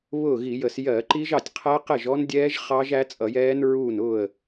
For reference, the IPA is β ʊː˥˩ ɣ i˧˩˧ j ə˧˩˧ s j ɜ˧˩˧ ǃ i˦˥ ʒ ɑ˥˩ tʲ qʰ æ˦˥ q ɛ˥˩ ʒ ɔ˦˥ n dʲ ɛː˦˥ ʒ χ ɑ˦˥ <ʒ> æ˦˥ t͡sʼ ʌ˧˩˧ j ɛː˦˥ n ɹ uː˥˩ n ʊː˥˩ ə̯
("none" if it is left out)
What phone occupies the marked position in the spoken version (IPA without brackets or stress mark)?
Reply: ʒ